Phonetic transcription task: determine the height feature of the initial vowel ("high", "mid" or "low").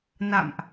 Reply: low